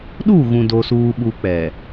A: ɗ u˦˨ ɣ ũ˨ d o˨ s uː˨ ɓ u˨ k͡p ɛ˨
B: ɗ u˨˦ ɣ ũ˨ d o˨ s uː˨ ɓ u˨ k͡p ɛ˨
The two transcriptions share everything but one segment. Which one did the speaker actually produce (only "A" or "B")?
A